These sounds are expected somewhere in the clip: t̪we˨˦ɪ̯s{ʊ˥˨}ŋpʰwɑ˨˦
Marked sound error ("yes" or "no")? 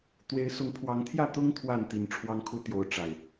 yes